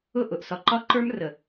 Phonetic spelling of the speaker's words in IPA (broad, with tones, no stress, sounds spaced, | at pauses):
ʊ˦˨ ʔ ʊ˨ ʔ s ɒ˨ ǃ ɒ˦ ǃ ə˞˦ m r ə˨